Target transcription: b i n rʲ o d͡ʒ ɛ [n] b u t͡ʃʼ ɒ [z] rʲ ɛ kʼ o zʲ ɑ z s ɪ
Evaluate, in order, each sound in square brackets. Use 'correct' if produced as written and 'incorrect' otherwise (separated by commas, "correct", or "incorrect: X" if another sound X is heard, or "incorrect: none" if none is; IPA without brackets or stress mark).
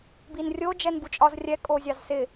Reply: correct, correct